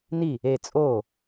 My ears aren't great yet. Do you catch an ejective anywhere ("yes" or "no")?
yes